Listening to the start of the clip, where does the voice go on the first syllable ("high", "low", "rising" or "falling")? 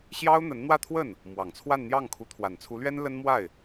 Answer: high